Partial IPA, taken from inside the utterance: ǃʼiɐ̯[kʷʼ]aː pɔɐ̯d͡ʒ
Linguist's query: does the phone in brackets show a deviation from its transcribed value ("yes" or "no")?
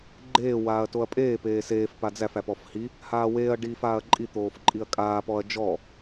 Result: yes